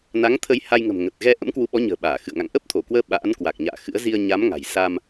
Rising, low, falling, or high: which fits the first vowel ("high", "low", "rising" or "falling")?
rising